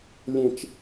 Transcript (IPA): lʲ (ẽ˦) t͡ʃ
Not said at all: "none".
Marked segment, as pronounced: ẽ˦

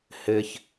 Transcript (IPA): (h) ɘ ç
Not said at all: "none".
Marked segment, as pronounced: h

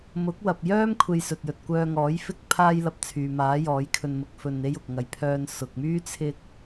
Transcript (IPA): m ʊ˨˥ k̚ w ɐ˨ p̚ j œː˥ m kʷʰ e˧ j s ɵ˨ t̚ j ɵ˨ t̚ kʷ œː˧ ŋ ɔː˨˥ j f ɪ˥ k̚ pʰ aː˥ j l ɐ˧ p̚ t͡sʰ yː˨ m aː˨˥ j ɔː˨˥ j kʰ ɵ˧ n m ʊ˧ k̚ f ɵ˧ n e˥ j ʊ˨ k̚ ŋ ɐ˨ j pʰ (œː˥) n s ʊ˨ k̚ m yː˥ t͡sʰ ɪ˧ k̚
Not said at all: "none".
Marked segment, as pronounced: œː˧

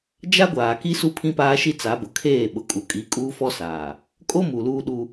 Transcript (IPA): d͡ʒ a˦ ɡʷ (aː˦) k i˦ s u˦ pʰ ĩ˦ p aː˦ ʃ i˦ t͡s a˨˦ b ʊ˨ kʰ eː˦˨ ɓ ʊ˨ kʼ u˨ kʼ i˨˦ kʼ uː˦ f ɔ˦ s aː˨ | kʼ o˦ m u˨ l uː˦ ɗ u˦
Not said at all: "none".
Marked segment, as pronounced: aː˨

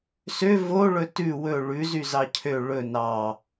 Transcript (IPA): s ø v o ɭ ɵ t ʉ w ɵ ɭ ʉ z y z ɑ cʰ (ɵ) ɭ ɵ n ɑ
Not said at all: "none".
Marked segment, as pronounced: ø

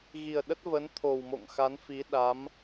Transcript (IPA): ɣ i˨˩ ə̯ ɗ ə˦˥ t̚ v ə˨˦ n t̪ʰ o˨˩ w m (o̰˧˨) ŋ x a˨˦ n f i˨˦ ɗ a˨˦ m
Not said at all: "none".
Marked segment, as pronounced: o̰˧˨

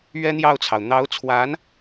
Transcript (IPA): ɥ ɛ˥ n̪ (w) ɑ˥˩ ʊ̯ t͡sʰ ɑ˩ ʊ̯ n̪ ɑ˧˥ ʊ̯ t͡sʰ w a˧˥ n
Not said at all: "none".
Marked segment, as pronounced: j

